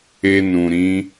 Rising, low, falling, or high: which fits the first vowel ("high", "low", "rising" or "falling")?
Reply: high